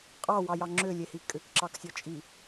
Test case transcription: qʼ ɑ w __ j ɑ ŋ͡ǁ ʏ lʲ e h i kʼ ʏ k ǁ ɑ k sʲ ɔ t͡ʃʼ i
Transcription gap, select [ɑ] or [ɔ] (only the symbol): ɑ